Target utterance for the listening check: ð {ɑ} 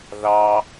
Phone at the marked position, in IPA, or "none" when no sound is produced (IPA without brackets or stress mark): ɑ